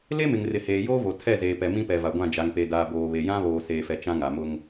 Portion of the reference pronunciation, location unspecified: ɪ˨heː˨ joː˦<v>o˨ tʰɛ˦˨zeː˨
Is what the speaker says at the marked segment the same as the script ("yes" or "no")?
yes